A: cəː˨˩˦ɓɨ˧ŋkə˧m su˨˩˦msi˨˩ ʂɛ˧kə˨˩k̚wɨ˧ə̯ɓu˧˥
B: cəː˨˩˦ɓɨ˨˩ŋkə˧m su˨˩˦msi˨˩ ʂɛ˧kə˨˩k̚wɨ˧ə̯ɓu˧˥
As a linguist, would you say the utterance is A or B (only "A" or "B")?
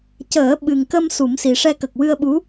B